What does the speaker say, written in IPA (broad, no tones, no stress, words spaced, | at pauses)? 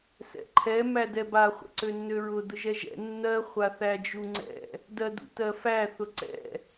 sɛ̰ǃʰɛ mædɛba χʷɛ̰ǀønːøɹʊ dʊʒɛʒɛ̰ nːɜ χʷaθæd͡ʒuŋ͡ǀɛ̰ | dɜdṵtɜfæ θʊǀɛ̰